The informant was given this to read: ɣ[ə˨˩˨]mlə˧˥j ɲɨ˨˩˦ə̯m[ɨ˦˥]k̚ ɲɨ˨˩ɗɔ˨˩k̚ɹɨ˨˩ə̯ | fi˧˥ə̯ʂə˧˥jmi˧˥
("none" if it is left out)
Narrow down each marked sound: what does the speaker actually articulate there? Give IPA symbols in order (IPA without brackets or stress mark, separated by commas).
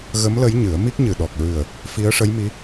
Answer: ə˧˥, i˦˥